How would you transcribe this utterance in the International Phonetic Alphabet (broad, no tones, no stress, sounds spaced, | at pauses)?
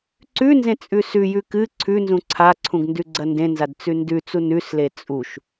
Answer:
ǀ ʉ n z ẽ t͡sʼ ʉ s ʉ j ʉ k ɨ ǀʰ ʉ n z ũ ǀʰ a ǀʰ ũ ɡ n d ʉ ɡ͡ǀ ɐ n d ẽ n z a d t͡s ʉ n d ʉ t͡s u n ʉ s l e t͡sʼ u ʃ